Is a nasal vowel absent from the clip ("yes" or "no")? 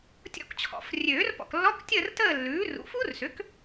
yes